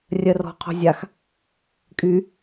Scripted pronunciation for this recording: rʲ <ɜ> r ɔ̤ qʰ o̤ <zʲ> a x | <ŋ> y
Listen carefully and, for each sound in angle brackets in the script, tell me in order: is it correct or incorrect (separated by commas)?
correct, correct, incorrect